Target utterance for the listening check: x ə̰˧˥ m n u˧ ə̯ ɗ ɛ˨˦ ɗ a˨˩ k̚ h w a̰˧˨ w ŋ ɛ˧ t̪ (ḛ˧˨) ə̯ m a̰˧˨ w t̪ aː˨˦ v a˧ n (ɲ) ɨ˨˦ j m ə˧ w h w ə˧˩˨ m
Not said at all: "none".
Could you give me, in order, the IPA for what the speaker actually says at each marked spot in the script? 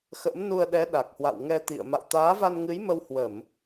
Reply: ḭ˧˨, ŋ

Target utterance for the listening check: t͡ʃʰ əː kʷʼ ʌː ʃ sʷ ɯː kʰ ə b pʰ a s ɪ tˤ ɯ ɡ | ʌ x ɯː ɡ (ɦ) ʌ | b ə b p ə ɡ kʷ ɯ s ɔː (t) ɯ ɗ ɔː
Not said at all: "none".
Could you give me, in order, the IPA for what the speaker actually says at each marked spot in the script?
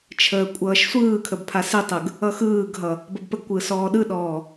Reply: ɦ, ɗ

